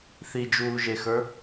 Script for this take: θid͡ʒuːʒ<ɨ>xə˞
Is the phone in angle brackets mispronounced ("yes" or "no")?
yes